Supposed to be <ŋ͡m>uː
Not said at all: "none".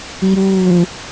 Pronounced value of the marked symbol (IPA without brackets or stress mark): ŋ͡m